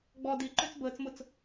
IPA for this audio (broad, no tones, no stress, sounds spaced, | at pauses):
ɡ͡b ɔ d i ǃ ø t͡s b əː t͡s m ʊ t͡s